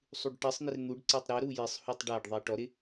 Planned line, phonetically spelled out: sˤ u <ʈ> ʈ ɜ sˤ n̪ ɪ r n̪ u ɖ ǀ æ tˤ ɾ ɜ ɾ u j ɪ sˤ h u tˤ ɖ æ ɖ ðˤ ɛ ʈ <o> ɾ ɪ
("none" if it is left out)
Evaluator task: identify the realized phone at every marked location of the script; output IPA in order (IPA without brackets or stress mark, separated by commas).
ɖ, ɔ